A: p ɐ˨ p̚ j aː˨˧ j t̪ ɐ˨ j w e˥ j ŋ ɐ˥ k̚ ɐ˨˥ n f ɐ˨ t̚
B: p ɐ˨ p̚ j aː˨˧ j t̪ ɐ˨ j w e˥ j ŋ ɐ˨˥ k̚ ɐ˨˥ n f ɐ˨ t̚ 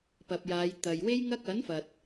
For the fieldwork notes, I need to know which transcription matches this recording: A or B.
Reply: A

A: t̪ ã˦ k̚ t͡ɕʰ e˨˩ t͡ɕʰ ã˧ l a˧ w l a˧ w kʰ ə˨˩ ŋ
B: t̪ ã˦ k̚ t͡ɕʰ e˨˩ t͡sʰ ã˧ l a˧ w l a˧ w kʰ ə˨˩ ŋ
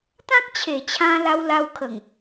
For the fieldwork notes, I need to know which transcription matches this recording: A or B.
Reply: A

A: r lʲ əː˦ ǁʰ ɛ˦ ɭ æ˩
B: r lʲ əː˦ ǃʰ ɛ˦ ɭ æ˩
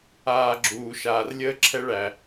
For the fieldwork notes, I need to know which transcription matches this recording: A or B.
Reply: A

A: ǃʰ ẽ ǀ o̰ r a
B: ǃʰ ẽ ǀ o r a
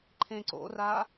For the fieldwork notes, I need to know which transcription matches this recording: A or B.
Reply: A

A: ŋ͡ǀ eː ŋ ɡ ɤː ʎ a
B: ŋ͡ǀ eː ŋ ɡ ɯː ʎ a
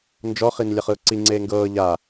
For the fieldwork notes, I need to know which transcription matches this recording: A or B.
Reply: A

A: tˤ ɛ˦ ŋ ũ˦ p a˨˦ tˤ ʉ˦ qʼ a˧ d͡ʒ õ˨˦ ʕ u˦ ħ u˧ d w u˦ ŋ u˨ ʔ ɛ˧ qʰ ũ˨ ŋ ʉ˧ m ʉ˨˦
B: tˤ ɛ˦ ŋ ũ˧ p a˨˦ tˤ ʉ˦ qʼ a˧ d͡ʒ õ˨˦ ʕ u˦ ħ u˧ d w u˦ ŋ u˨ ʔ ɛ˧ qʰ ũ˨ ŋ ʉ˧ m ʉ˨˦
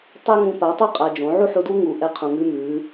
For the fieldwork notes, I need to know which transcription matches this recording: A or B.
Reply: B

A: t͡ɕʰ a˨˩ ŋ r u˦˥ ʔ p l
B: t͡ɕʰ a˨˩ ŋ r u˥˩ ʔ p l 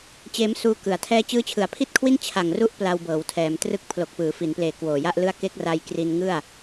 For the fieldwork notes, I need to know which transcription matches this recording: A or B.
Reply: A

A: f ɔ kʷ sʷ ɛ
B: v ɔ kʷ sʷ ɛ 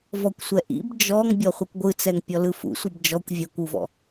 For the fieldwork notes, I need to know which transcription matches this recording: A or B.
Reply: B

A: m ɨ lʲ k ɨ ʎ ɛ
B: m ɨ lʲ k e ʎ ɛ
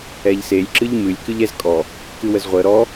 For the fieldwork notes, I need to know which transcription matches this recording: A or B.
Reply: A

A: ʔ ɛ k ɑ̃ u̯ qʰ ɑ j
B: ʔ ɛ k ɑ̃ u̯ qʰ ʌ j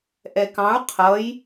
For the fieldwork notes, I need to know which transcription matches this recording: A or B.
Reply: B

